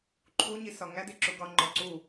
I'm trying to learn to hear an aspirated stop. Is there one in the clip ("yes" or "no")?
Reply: yes